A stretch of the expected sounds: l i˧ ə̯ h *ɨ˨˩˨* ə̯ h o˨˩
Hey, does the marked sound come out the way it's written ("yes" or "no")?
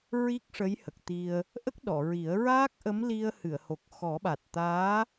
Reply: yes